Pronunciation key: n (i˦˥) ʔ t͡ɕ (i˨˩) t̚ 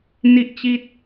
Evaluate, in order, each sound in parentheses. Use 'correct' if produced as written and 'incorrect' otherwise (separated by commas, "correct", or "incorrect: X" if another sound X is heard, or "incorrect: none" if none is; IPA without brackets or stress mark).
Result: incorrect: i˥˩, incorrect: i˥˩